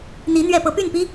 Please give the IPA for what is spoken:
n̪ i˧˥ n̪ ɥ ɛ˥˩ p ɤ˧˥ p y˥˩ n p i˥

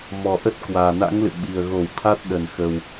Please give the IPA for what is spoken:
m ɔ˨˩ ʔ ə˦˥ t̚ k w aː˨˩ n a̰˧˥ ŋ l ɨ̰˧˨ ɓ i˨˩ ə̯ ɣ o˧˩ w t̪ʰ a˦˥ t̚ ɗ ə˧˩ n x ə˨˩ w

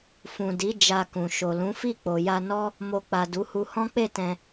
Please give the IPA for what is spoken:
f ũ˨ d i˨˦ d͡ʒ a˧ k ũ˨ ʃ o˨ l ũ˨˦ f i˦˨ k͡p o˨ j a˧ n ɔ˦ | m o˨ k͡p a˨ d u˨˦ h u˧ h ɔ̃˦ k͡p e˦˨ t ɛ̃˧

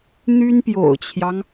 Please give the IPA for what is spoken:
n̪ y˥ n p j o̰˨˩ ʊ̯ t͡ɕʰ j ɑ˦ ŋ

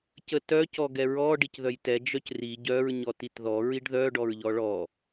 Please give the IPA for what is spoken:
c ə t œ c ɔ ɡ ɛ ɹ ɔ ɖ i c ð œ j t ɛ d͡ʒ œ c r i ɟ œ ɹ ɲ ɔ t i t ð ɔ ɹ i ɖ ð œ ɖ ɔ ɹ ʎ ɔ ɭ ɔ

